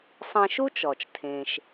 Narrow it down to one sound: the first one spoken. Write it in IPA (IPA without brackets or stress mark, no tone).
sˤ